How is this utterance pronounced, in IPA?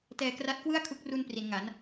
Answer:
tɛː˧ kra˦˥t̚kwɯ˥˩a̯kʰu˦˥k̚ru˧n pri˩˦nŋa˩˦n

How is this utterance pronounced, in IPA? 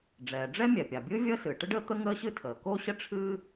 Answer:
ɖ͡ʐɛː˩ɖ͡ʐɛ˥ mʲɛ˩pʲa˩bʲɨː˥ vʲəː˥sɨː˩ ʈə˥ɖəː˥ t̪ə˥ŋəː˥ɕɨ˥ tʰəː˩ko˥ ɕə˥ ʈ͡ʂʰɨː˥

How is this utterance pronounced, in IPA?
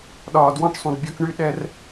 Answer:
ɗɒː˨dwɔ̃˦˨ʈsˤũ˨d bʲɔ˦kɳy˦ ɗɛ˦r

